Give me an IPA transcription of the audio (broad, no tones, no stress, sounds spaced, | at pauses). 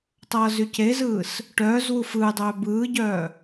tˤ ʌː z y c e z ɯː s | ʈ œː z w u f ɯː dˤ œː b ɯː ɟ œː